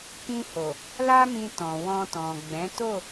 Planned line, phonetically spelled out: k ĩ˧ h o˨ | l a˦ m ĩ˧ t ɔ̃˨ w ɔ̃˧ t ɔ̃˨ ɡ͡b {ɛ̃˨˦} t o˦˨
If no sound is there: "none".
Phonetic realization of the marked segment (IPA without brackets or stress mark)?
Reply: ɛ̃˨˦